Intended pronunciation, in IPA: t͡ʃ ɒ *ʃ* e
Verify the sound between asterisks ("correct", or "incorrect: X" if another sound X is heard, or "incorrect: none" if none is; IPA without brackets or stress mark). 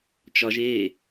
incorrect: ʒ